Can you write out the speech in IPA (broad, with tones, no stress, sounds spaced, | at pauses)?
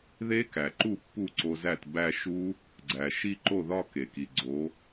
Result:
ð e˦˥ k æ˩ ǃ u˥˩ pː u˥˩ ǀ o˧ z æ˥˩ t b æ˥˧ ʃ u˦˥ | ɡ͡ǀ æ˩ ʃ i˥˧ ǃ o˥˩ ð ɒ˥˧ k e˩ k i˩ ɡ͡ǀ o˨˥